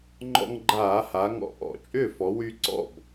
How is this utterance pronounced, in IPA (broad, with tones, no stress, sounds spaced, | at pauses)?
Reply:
ŋ͡ǃ ɔ̰˧ ŋ ɡ͡ǃ aː˧˩˧ h a˩˧ ŋ ɔ̰˧˩˧ ʔ ɔ̰˧˩˧ t͡ʃʼ ʏː˥˩ f ɔ˩˧ w y˧ ǀ ɔ̰˥˩ b